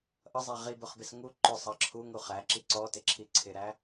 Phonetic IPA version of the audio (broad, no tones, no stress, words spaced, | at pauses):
ʔʌzˤæ ʁibʊχbɪs ŋu ǃʊsˤɑ ǁʰuŋu χæǁi ǀɔtɪǁʰi ǀʰɪɾæ